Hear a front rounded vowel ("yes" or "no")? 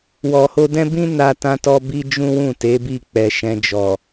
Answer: no